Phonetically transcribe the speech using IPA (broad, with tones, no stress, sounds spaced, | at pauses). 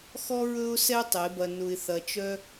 x ɔ˦ ɹ ɵ˦ ʊ̯ s ɛ˦ tˤ e˨˦ b ɐ˧ n ʊ˧ ɪ̯ θ ɐ˧ t͡ʃ œ˦